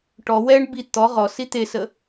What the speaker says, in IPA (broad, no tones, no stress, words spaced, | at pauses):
ʈɔ wɛɳ bi t̪ɔ ʁɔsi t̪esə